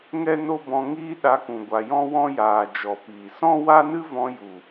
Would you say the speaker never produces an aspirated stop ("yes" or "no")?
yes